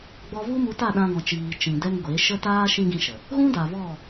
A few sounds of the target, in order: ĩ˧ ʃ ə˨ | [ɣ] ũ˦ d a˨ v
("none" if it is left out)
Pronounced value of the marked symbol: ɣ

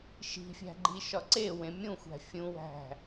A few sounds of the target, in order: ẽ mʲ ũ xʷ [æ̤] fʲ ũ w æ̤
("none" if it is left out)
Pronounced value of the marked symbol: æ̤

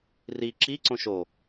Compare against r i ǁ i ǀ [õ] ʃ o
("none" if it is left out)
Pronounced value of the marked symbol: õ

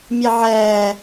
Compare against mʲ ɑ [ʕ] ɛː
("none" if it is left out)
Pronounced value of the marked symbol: ʕ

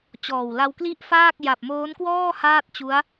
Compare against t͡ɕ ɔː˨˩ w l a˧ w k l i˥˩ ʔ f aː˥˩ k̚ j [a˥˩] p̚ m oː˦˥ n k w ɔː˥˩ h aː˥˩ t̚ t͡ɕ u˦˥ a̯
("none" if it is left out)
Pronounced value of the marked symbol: a˨˩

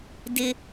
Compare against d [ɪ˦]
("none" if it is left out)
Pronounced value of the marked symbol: ɪ˦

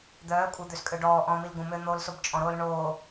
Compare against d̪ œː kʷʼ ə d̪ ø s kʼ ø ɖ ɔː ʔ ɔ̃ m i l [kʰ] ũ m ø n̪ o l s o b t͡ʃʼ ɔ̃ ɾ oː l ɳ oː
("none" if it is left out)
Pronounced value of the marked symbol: ɡ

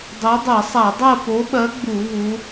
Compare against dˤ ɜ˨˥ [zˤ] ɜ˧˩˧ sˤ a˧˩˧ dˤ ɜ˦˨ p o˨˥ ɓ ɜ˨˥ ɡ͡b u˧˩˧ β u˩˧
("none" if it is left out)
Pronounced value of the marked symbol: dˤ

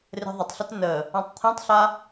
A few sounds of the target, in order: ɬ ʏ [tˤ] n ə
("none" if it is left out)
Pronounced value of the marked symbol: t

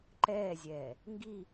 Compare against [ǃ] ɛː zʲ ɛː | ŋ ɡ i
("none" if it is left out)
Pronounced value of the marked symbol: ǃ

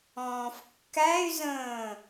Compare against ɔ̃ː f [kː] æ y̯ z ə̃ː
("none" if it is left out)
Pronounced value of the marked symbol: kː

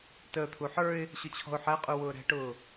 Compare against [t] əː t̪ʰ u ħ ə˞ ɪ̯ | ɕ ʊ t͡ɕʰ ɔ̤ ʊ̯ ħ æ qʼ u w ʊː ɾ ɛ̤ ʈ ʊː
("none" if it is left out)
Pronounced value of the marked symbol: t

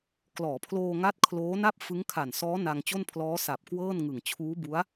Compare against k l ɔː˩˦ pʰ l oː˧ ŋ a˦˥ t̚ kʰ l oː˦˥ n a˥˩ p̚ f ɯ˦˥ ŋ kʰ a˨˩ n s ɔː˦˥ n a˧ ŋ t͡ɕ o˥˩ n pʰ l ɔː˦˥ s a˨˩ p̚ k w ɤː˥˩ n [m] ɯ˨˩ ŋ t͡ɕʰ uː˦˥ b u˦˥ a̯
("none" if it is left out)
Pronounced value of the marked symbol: ŋ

